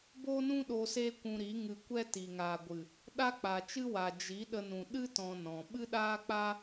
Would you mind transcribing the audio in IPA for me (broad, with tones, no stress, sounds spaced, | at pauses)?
b o˦ n ũ˦ ɗ o˧ s e˦ kʷ ũ˧ ɾ i˨˦ ŋ ɨ˧ kʷ ɛ˦ t i˨ ŋ aː˨ ɡʷ ɨ˨ | ɗ a˦ k͡p a˨ t͡ʃ ɨ˦ w a˨ d͡ʒ i˨˦ ɗ ə˧ n ũ˨ ɗ ɨ˦ t ɔ̃˧ n ɔ̃˨ ɓ ɨ˦ ɗ aː˦ k͡p a˦